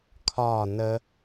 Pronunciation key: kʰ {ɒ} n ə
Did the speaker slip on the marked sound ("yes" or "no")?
no